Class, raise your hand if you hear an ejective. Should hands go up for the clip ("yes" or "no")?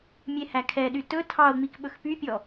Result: no